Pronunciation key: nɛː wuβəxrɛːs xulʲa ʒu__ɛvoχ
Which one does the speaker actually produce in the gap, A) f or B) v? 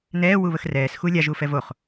A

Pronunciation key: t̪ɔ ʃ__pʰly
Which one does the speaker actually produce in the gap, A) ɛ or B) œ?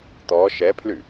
A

